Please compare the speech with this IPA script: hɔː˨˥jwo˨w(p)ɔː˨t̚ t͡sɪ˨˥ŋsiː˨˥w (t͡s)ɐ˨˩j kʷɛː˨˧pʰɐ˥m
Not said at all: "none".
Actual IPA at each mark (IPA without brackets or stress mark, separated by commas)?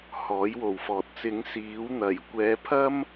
f, n̪